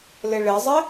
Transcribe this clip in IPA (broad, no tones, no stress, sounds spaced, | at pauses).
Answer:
l ɪ ɭ ɪ zˤ ɪ